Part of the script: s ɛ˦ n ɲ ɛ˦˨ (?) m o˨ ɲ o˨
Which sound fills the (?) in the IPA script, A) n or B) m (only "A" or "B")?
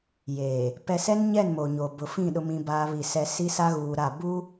A